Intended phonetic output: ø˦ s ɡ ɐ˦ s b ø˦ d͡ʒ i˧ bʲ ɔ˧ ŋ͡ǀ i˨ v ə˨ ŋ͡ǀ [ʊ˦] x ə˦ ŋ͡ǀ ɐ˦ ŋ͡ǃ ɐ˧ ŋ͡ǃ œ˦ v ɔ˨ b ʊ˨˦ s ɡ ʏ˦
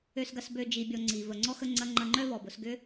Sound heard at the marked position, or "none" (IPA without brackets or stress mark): ɔ˦